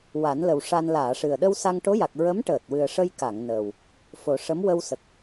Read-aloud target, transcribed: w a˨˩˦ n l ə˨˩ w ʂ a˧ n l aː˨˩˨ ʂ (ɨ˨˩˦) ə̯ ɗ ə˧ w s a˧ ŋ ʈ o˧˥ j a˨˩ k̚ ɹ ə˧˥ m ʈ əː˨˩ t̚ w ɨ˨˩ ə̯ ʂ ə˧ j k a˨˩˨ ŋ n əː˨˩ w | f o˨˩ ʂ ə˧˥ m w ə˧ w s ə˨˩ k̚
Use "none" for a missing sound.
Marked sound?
ɨ˨˩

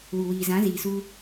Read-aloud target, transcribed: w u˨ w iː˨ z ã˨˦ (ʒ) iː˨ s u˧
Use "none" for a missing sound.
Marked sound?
z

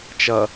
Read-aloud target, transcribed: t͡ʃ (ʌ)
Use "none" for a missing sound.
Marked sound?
ʌ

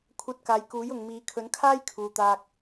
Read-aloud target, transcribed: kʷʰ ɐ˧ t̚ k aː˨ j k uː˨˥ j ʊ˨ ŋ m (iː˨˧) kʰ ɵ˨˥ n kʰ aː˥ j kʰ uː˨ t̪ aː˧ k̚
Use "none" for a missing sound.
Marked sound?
iː˨˧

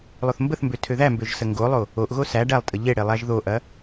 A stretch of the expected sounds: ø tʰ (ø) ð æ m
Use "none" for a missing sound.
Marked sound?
ø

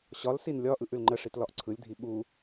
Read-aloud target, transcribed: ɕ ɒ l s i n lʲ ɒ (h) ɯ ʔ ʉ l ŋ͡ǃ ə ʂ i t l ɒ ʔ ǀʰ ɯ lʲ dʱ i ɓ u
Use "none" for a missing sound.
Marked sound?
ʔ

